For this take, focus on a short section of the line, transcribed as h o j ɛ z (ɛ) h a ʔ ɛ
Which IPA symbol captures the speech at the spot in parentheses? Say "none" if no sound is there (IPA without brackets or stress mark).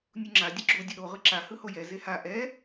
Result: e